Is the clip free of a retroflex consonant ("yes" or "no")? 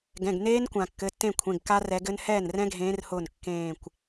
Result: yes